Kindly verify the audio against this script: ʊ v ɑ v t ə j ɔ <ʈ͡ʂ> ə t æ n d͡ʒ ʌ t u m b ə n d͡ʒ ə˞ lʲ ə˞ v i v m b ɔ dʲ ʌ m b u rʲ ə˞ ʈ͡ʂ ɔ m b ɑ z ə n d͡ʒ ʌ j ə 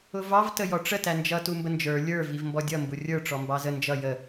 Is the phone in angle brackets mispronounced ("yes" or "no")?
no